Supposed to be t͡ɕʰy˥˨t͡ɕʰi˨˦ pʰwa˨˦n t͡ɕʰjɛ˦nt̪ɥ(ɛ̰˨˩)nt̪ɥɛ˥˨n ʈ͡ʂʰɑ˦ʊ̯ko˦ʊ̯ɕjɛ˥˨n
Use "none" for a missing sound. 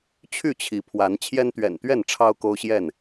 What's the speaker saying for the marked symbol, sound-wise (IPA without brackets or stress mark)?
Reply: ɛ̰˨˩